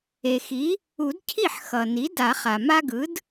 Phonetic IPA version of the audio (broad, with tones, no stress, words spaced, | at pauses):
e˩xi˩˥ | u˨˩˦dcʰi˥˩ħxʌ˩ni˩˥ da˨˩˦χa˩ ma˦ɡɯ˩˥d